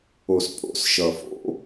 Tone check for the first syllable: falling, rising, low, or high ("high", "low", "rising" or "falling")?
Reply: low